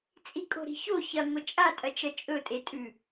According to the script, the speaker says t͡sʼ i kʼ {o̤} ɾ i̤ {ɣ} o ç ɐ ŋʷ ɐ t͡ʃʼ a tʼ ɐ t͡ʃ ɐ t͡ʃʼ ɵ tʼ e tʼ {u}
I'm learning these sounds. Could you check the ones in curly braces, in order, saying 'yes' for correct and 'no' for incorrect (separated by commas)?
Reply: yes, no, no